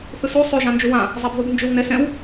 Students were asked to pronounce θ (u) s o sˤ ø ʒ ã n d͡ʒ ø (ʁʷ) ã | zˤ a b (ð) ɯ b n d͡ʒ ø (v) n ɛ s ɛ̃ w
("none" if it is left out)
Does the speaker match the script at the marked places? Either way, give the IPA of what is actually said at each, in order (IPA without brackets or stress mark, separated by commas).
ɯ, w, ð, w